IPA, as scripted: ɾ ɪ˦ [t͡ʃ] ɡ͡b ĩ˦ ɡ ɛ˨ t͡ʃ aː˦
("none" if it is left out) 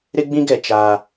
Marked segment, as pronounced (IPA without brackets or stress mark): none